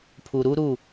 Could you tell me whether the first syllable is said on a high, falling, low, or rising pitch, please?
low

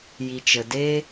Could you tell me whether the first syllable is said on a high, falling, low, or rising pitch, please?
low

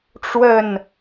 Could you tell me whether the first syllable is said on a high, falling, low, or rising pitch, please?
falling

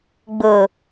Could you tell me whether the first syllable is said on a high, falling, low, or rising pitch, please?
low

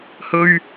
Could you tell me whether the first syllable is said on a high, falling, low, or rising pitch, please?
low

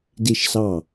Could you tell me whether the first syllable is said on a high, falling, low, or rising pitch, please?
falling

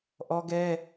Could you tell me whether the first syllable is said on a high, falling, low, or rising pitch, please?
high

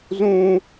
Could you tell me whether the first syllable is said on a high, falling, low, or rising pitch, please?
high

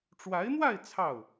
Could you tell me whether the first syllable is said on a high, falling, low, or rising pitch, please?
rising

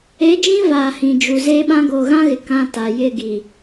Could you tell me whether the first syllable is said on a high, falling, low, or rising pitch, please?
rising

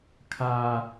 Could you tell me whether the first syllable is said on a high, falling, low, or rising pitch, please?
high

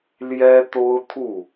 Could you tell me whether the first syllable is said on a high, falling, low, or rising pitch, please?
high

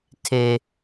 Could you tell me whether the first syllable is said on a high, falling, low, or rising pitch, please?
high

